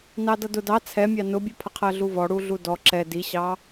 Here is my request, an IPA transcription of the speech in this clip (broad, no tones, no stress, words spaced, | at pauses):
nɑdʌdʊ dɑ t͡sʰɛmʲɑ nʊbʲupʰə qʰɜɮuvɔ ɽuɮudɔ ǁɛ diɕɑ